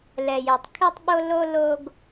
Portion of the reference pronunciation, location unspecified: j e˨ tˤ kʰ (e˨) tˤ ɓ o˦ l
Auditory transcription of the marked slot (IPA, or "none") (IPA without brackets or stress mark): e˦